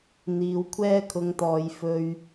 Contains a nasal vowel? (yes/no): no